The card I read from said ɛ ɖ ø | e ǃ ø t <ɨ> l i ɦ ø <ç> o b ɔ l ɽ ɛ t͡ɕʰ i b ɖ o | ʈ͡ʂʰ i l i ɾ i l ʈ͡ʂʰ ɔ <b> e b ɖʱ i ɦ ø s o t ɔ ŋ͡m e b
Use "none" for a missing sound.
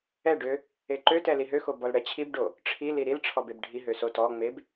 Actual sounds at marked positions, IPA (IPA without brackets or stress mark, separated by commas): ɛ, x, b